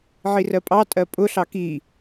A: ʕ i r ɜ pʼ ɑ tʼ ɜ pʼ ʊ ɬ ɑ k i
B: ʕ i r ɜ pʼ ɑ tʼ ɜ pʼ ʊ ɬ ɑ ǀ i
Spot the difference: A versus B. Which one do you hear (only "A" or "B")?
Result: A